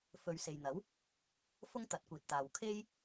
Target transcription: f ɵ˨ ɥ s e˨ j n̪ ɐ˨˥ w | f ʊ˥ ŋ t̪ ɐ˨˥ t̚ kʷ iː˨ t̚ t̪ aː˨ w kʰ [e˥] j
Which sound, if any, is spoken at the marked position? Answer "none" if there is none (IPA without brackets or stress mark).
e˥